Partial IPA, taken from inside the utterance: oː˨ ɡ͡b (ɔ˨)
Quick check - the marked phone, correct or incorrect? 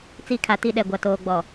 correct